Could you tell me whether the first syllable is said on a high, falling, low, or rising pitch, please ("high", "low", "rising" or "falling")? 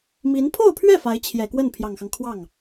rising